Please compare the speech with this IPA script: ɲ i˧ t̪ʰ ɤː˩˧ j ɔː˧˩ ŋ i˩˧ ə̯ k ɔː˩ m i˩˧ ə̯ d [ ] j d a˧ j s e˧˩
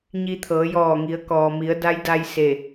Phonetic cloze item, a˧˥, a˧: a˧˥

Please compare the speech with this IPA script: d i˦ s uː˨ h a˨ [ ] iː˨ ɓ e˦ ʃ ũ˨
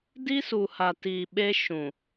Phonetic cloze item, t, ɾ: t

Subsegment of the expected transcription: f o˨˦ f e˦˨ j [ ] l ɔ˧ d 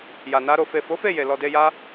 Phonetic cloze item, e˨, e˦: e˨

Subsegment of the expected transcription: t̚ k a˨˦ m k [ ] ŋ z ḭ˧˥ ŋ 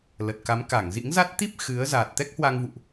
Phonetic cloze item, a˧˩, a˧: a˧˩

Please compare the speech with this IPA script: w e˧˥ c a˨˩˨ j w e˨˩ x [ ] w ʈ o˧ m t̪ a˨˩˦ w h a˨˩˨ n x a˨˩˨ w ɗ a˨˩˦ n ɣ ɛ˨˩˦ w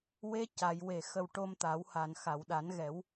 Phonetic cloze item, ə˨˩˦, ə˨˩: ə˨˩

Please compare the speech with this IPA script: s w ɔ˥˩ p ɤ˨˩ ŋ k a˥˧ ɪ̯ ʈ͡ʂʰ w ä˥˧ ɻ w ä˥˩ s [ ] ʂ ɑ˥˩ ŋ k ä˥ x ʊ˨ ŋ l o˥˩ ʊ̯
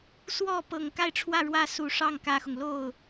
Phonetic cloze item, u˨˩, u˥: u˨˩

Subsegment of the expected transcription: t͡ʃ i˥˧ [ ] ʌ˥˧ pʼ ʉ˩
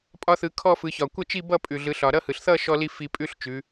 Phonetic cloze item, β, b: b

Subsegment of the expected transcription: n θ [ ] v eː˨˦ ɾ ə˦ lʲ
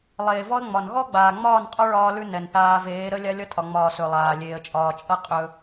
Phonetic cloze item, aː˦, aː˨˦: aː˦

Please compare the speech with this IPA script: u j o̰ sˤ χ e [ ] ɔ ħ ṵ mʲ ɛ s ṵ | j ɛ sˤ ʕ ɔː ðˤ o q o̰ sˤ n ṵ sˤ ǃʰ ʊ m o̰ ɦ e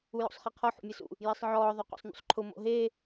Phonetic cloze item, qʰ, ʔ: qʰ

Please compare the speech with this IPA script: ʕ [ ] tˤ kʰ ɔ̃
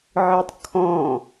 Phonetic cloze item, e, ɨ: ɨ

